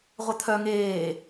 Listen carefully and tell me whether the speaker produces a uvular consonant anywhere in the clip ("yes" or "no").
yes